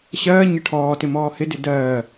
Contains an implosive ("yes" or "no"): no